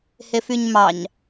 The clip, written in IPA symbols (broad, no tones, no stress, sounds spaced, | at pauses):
h e f y ɲ m ɑ ɲ